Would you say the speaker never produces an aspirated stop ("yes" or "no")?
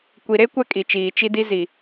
yes